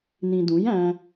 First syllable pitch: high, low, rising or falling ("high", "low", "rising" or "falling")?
low